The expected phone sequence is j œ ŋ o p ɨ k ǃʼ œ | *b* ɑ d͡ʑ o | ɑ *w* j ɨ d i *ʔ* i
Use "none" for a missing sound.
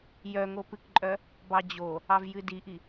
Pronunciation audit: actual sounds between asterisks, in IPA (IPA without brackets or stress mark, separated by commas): b, v, ʔ